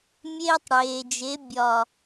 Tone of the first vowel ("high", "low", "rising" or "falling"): high